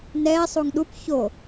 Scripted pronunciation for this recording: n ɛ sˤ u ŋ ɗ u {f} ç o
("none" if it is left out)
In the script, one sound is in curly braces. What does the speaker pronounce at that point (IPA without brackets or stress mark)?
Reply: p